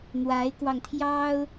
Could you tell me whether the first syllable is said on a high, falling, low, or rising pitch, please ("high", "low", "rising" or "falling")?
rising